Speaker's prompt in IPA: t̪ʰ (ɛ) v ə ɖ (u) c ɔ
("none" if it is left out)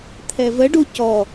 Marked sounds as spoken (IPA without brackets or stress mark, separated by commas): ɛ, u